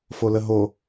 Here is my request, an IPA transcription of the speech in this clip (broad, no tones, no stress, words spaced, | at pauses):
foləɦo